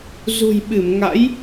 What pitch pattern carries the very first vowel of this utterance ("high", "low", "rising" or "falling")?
low